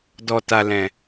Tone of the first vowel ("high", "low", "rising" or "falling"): low